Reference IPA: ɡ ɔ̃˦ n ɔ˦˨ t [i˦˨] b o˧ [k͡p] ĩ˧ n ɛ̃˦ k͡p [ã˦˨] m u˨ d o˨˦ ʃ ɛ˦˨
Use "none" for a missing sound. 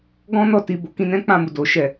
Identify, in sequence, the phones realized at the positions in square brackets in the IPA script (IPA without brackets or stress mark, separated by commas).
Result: i˧, k, ã˦˨